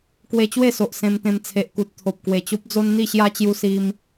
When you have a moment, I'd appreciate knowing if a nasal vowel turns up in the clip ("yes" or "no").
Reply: yes